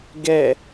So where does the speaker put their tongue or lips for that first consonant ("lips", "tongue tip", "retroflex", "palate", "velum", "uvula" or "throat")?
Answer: velum